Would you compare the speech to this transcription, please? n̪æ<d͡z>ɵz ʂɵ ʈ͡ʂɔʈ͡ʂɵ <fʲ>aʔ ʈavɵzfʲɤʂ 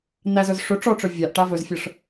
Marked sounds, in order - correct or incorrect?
incorrect, incorrect

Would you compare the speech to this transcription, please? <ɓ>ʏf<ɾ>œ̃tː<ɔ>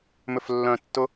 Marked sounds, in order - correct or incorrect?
incorrect, incorrect, incorrect

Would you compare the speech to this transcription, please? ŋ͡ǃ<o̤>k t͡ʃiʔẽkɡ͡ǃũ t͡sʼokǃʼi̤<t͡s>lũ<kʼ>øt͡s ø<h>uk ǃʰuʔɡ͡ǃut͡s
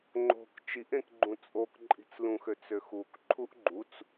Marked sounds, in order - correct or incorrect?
correct, correct, incorrect, incorrect

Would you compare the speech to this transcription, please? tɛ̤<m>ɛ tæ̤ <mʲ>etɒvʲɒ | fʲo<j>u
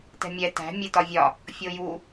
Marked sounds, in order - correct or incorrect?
incorrect, correct, correct

